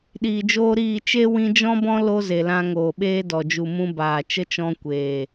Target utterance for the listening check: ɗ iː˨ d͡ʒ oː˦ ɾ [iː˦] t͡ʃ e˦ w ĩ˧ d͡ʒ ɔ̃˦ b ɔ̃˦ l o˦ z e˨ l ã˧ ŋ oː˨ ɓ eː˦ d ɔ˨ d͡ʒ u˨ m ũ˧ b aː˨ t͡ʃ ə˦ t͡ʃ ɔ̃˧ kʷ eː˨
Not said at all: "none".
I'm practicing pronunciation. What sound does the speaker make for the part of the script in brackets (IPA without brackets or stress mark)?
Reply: iː˦˨